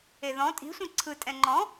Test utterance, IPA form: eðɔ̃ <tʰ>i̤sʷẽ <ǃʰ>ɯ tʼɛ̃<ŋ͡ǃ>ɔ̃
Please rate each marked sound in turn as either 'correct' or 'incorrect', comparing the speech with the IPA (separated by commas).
incorrect, incorrect, correct